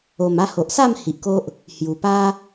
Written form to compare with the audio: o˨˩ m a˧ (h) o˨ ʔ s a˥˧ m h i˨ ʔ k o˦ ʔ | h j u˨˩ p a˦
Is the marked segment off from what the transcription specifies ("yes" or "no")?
no